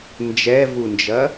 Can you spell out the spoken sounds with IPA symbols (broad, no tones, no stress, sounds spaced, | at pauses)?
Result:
n d͡ʒ ɛ v u n d͡ʒ ɐ